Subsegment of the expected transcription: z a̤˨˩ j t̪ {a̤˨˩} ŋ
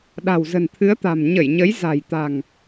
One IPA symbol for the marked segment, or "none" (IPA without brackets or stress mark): a̤˨˩